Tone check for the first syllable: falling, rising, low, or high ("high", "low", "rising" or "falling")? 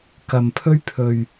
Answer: low